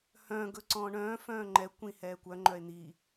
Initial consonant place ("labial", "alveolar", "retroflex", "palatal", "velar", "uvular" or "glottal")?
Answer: glottal